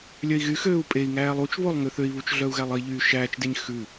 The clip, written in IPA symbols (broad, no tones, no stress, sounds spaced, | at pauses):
lʲ œ i̯ ɣ y x øː u̯ pʼ e i̯ ŋ æː lˠ u t͡ʃ β o lˠ ŋ ø θ ø i̯ β u t͡ʃ ɮ œ u̯ ɣ æ lˠ i ʎ yː ʃ æː t͡ʃ d e ɲ x ʉ